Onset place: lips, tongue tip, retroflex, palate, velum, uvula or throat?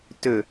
tongue tip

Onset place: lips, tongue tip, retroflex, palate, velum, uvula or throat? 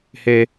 throat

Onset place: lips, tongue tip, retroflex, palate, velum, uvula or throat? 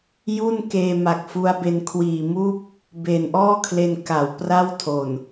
palate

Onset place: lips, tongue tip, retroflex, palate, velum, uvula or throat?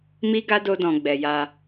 lips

